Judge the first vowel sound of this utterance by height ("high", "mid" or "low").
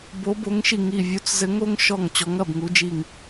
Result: mid